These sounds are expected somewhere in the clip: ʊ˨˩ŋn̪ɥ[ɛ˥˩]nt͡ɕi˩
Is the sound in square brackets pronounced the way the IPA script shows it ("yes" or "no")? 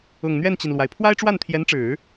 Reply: yes